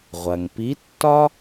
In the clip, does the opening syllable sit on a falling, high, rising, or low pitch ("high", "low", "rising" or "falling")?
low